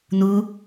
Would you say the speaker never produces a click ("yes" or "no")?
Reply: yes